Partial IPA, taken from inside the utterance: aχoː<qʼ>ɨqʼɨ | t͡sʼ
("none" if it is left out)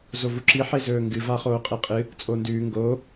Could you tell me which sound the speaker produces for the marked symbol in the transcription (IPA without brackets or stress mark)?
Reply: qʼ